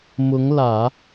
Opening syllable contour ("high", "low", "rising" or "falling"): rising